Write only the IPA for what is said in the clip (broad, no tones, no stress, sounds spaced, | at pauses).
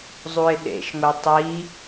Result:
zˤ u ɪ̯ ɗ ḛ ʃ ŋʷ ɛ tˤ i